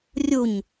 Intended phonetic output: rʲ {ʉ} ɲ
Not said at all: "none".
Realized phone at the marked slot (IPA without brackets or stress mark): u